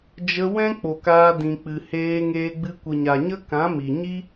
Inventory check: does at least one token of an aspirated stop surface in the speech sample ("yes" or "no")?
no